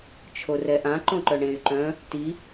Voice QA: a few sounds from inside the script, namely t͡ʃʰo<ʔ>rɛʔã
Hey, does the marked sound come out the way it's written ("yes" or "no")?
no